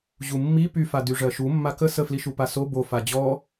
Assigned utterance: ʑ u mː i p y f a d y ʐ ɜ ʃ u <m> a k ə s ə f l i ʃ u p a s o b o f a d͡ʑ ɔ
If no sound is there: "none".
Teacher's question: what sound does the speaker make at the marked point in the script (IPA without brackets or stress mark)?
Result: mː